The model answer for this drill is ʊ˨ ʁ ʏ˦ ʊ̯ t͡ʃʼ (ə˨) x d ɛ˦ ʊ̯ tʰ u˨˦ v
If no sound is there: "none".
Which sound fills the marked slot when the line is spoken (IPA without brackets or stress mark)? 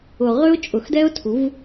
ʊ˨